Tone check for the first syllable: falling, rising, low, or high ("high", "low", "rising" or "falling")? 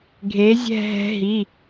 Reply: rising